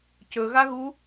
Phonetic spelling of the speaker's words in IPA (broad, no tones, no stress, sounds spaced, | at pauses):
c ɵ ɣ a ɣ u